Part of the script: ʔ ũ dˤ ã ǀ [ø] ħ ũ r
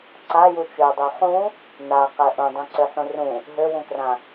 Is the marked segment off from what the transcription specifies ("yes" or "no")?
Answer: no